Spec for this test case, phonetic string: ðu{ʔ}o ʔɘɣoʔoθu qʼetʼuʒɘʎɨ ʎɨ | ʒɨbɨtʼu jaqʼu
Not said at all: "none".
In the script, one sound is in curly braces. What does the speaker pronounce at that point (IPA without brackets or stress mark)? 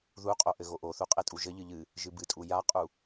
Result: qʼ